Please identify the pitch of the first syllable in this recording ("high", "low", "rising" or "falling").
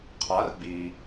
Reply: rising